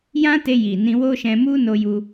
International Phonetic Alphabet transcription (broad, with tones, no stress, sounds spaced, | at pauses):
j ã˦ t e˧ j i˨ n ĩ˧ w o˦ ʃ ɛ̃˧ m u˦ n o˦ j u˦